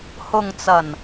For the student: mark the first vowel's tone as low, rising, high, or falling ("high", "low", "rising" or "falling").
low